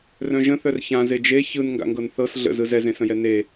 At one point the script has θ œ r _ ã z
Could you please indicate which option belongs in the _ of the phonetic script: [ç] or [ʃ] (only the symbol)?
ç